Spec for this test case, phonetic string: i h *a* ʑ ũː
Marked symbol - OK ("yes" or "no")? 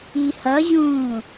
no